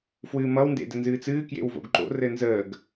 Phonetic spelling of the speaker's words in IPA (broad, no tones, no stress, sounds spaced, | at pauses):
f w ɨː m ʌ w n d ḛ d ɘ n z ɨː t͡s ɨː k j ḛ w v o̰ ɡ ǃ o̰ r ɘ n z əː ɡ